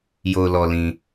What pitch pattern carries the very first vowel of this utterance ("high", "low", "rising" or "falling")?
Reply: low